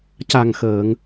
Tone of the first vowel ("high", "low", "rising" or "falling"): low